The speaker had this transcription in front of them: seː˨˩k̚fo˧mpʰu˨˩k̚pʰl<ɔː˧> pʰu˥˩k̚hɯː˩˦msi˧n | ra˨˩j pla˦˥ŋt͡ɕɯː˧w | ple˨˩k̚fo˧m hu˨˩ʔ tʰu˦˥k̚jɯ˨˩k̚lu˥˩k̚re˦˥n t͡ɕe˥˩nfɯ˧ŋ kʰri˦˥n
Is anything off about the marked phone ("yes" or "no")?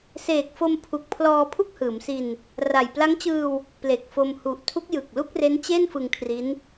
no